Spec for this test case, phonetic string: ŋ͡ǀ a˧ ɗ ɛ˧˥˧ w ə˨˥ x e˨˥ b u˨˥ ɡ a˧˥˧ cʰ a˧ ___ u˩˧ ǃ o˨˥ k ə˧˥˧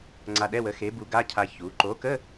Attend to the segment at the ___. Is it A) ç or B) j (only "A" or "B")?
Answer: A